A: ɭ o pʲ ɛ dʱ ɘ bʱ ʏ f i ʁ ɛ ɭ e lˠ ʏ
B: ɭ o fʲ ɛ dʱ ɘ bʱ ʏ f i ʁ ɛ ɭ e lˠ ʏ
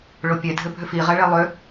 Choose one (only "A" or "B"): A